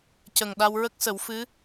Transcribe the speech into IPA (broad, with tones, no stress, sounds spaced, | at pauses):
c ə˨˩ ŋ ɗ a˧ w ɹ ə˦˥ k̚ s ə˨˩˦ w f ɨ˧˥